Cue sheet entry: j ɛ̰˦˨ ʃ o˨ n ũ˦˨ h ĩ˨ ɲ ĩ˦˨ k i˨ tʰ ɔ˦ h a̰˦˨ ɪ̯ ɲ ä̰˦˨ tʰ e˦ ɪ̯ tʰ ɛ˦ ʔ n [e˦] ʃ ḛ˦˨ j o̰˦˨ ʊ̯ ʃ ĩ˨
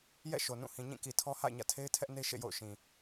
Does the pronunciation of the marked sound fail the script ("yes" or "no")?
no